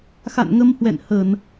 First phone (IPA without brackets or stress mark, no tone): x